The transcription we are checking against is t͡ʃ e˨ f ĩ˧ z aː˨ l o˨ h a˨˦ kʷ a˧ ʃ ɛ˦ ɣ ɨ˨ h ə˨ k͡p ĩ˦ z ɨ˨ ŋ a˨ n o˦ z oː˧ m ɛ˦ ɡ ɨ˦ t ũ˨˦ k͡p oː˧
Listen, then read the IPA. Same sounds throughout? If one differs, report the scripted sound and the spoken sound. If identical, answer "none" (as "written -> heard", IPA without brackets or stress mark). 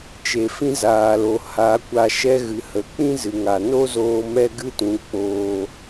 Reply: none